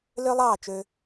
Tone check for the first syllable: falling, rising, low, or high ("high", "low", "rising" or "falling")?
high